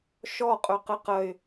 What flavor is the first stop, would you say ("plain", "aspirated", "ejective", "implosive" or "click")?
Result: ejective